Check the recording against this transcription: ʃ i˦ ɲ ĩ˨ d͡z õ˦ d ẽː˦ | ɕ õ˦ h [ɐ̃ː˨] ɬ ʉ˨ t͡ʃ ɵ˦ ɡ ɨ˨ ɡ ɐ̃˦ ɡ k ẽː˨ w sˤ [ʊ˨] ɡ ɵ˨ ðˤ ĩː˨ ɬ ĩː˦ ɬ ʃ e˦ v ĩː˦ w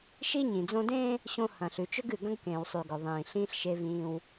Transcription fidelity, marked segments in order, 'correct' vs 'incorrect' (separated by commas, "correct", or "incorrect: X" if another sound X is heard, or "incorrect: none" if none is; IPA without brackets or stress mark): correct, incorrect: ʉ˨